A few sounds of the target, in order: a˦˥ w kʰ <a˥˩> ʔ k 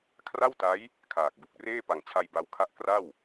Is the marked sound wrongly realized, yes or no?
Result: no